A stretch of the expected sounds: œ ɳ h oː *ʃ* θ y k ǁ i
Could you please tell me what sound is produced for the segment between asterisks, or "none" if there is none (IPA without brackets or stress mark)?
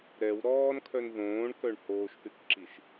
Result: ʃ